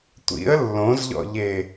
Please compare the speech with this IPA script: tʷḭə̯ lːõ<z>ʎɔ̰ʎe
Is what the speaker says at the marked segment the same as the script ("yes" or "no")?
yes